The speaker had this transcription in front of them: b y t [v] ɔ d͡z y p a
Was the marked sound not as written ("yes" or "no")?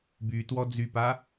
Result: yes